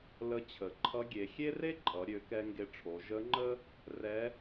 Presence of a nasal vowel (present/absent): absent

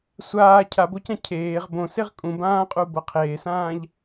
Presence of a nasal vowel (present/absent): present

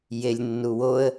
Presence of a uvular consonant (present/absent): absent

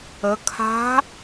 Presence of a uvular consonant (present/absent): absent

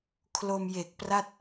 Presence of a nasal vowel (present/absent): absent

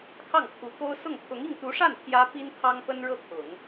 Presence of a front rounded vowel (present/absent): absent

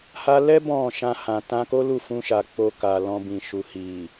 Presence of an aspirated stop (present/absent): absent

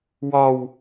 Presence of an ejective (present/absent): absent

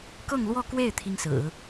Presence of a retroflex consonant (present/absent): absent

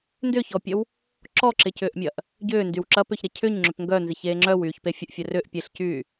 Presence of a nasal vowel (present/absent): absent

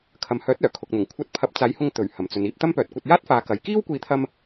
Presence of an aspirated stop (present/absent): present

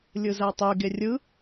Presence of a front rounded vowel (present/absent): present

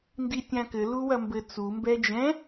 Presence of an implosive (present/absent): absent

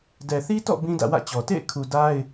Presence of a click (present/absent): absent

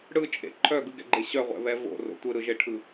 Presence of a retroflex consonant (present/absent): present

